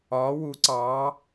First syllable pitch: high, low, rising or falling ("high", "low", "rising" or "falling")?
rising